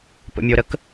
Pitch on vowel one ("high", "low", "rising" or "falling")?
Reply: low